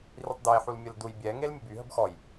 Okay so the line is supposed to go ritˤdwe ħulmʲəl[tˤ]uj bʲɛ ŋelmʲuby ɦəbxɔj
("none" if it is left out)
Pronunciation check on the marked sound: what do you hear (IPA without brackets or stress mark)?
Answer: d